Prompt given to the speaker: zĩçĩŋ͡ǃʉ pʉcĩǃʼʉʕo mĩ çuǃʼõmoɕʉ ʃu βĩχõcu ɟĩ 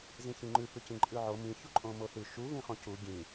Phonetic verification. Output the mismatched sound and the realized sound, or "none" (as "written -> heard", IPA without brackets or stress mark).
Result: ɕ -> θ